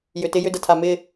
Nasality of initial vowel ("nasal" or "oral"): oral